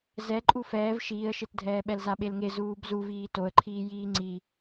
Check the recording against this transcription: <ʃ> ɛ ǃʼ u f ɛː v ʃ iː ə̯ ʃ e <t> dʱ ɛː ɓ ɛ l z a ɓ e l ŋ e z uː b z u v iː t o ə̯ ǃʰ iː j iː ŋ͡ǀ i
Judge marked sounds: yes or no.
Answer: no, yes

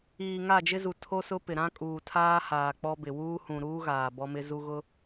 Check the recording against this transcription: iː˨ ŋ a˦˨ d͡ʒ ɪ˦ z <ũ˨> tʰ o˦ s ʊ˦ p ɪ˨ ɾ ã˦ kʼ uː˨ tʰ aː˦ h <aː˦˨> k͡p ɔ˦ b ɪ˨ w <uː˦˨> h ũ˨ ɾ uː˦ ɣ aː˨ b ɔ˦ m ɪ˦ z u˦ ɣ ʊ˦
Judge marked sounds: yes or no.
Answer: no, no, no

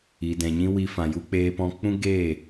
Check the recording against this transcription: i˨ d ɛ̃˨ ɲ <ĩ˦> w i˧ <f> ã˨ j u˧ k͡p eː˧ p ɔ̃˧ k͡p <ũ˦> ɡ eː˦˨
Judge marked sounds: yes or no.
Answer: yes, yes, yes

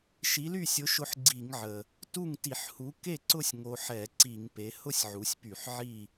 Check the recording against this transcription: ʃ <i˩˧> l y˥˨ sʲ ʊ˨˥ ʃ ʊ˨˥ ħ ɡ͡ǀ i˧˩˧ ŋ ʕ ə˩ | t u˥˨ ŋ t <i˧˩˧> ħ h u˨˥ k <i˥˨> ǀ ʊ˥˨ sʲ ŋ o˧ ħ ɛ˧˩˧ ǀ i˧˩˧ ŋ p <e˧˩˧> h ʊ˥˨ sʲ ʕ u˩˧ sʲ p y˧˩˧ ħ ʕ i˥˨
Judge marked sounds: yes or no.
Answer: no, yes, no, no

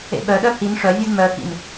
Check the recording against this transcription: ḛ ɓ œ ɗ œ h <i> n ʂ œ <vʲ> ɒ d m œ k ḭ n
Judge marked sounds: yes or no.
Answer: yes, yes

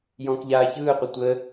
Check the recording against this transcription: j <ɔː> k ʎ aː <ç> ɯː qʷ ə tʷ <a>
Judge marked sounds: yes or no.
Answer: no, yes, no

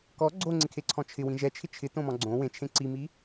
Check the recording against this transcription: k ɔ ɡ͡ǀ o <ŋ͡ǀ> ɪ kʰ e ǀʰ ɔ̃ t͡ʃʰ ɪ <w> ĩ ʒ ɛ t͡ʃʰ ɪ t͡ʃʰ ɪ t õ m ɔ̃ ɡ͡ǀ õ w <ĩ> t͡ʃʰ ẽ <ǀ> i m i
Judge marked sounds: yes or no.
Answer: yes, yes, no, yes

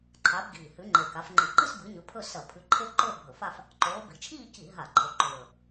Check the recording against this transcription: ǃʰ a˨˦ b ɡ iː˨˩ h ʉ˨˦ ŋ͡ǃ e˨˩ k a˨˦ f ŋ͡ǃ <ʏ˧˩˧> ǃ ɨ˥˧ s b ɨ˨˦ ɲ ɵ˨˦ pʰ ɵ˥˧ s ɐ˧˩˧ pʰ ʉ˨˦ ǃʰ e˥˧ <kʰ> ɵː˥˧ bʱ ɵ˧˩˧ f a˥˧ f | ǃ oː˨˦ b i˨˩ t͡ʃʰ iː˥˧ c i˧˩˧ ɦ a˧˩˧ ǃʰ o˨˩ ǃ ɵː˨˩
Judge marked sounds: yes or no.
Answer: no, no

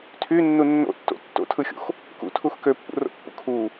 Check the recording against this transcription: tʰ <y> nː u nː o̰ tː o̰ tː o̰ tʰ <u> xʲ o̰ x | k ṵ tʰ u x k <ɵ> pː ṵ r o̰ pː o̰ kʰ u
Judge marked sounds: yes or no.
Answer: yes, no, no

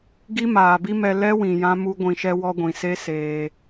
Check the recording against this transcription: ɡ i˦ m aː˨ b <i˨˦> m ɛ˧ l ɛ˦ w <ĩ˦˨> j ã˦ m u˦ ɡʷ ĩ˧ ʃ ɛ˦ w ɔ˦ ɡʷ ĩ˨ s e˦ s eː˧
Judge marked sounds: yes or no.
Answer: no, no

